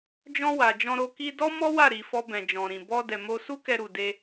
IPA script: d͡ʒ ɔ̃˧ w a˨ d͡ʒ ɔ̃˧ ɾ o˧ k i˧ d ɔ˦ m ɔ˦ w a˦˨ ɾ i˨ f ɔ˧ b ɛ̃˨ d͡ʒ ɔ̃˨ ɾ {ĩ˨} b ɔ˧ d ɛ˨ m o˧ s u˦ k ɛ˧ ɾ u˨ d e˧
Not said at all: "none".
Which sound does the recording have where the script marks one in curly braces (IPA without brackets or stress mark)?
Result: ĩ˨